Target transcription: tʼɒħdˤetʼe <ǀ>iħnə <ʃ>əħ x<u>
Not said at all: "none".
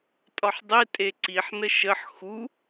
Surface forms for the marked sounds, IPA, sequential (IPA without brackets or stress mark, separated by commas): ǀ, ʃ, u